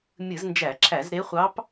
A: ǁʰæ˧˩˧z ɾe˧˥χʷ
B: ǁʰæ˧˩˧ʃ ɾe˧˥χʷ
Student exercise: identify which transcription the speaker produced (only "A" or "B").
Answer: A